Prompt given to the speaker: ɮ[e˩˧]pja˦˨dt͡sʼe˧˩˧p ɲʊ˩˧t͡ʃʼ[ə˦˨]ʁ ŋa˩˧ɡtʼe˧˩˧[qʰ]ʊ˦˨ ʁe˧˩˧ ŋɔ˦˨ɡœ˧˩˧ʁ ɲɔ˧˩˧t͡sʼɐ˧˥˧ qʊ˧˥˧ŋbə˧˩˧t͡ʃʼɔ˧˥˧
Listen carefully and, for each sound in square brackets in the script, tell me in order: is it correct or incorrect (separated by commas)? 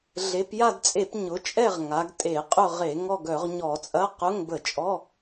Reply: correct, incorrect, incorrect